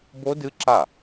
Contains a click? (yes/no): yes